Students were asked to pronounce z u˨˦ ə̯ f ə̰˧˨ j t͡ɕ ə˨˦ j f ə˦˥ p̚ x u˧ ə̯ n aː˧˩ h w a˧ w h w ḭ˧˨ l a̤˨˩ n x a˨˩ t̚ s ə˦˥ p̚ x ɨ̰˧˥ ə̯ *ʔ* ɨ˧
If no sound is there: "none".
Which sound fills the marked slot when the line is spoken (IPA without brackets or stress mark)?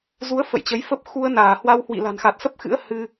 h